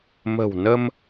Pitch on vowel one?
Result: low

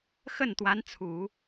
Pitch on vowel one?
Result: falling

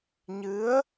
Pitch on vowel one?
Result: rising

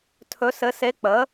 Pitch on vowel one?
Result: rising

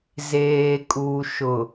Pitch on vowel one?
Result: low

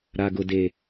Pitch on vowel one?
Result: low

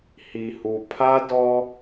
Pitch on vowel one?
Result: low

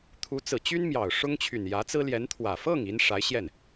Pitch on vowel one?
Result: rising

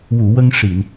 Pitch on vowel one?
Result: low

